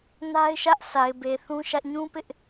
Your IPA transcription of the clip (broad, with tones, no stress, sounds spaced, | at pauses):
n a˦ ɪ̯ ʃ ä˦ ʔ sʰ a˨ ɪ̯ b e˨ θ ũ˦ ʃ ä˦ ʔ ɲ ũ˦ p ɪ˦ ʔ